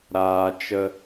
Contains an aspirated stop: no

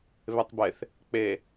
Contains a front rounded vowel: no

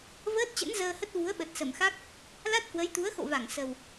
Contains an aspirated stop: no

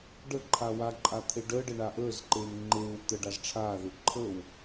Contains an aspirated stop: yes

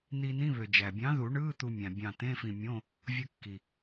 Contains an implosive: no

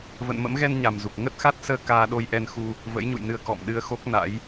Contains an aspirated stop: no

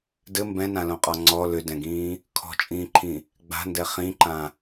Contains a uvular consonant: yes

